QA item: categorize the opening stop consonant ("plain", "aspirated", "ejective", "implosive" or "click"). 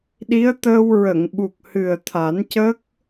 implosive